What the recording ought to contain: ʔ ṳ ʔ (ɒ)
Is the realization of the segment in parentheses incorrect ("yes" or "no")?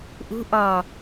no